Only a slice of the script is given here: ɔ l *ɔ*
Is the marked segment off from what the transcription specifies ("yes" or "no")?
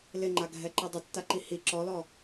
no